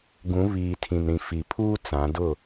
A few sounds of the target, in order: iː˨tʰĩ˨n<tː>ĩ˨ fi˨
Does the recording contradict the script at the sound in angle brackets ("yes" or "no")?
yes